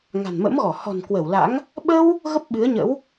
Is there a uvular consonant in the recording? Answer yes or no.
no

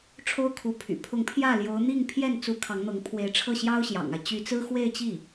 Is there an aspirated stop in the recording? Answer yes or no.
yes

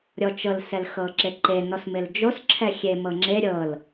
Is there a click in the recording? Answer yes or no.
yes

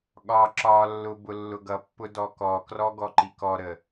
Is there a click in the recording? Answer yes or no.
yes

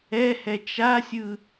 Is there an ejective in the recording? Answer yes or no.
no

